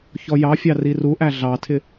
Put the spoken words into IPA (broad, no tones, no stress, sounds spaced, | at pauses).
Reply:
ç ɔ j ɑ fʲ ɑ r i r u ʔ æ ɮ ɑ tʰ ɪ